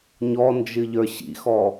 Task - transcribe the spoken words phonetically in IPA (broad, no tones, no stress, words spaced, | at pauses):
ɲɔnd͡ʒɨ ʎə˞ɕḭxɔ